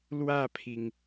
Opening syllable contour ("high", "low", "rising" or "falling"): falling